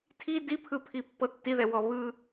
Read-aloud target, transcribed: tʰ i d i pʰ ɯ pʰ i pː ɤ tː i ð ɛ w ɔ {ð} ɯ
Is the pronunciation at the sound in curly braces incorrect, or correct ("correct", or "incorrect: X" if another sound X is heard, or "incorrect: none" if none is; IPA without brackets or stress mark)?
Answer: incorrect: β